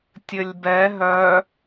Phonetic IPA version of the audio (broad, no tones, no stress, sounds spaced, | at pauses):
tʲ ɘ lʲ b ɛ ɦ œ